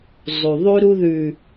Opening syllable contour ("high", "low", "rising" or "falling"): low